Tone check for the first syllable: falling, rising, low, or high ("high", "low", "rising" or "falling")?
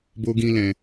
high